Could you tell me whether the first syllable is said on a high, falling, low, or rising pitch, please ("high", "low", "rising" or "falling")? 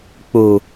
low